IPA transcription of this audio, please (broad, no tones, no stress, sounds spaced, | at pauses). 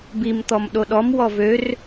b i m t̪ ɔ m ɗ o ɗ ɔ m w ɔ v ø r